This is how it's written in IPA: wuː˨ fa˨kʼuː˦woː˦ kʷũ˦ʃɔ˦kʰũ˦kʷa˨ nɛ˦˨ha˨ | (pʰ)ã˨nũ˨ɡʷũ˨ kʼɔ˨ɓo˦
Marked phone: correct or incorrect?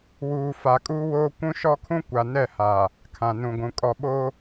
incorrect